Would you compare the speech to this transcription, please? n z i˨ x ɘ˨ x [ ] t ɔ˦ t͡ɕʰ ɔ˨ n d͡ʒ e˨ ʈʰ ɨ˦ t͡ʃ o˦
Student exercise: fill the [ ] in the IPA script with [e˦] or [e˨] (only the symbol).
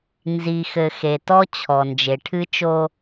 e˨